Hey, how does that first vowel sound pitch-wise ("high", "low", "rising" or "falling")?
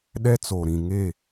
high